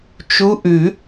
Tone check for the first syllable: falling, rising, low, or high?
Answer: rising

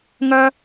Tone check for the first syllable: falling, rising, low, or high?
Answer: high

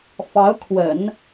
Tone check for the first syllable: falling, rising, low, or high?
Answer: rising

